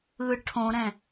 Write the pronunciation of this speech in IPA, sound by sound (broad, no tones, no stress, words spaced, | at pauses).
ɯ ʈʰõɾɛ̃